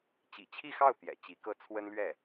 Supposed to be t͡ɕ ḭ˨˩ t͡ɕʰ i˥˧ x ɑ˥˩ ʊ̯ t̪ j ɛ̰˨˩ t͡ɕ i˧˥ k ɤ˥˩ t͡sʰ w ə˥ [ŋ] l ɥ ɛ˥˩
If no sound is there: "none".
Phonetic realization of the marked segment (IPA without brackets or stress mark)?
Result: n